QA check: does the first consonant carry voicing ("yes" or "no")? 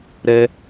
yes